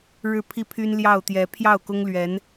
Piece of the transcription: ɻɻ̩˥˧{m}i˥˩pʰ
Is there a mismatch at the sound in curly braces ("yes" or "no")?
yes